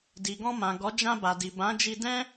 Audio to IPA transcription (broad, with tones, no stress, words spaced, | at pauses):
di˨ɡɔ̃˧mã˨ɡɔ˨˦ d͡ʒã˧ba˨di˨ bã˨˦d͡ʒi˧ dɛ̃˦